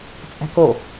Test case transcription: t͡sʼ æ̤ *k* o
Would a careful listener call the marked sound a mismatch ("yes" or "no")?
no